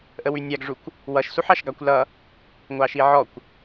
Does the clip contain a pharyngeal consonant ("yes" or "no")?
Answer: yes